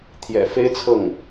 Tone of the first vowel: low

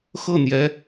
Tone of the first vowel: falling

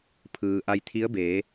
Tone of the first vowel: low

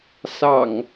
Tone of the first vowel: low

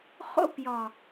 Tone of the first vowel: high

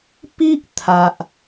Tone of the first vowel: high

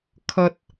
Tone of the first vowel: high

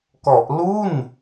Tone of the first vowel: low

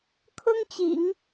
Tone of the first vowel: high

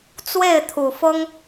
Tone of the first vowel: falling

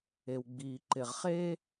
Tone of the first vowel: low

